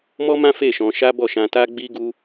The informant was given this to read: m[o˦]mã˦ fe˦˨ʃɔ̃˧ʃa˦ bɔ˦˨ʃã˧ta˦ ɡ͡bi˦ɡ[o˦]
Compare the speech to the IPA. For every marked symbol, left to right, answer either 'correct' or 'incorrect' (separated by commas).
incorrect, incorrect